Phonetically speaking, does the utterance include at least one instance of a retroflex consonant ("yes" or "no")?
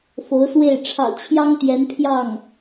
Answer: yes